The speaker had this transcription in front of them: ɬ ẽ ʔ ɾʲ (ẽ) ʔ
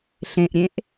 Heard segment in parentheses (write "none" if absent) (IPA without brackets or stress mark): ẽ